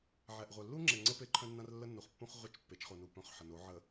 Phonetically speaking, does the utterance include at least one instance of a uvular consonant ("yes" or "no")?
yes